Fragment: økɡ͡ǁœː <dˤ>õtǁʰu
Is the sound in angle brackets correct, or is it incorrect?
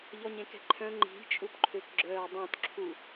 correct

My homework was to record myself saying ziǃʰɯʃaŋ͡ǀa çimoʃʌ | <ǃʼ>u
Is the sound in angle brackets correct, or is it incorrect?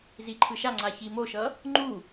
incorrect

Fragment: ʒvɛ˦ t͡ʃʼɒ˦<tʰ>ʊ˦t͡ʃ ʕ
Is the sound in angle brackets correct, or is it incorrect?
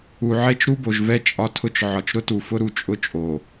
correct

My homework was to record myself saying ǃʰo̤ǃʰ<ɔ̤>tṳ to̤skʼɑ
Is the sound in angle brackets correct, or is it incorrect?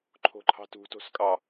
incorrect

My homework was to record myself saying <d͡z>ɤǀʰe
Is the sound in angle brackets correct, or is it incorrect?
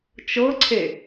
incorrect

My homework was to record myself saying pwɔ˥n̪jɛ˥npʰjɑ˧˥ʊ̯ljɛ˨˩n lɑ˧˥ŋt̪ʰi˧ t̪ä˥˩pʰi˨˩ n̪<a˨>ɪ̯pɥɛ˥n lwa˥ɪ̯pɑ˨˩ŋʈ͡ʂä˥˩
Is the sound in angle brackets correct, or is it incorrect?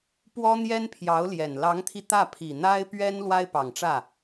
incorrect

